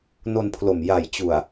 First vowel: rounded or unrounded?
rounded